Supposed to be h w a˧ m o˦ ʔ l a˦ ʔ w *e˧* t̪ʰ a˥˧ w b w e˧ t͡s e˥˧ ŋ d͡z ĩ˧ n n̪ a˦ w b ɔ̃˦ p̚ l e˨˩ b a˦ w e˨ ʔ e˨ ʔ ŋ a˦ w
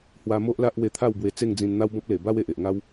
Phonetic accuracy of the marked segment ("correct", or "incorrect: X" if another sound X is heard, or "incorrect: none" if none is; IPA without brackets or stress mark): correct